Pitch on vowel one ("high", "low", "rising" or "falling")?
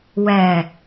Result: low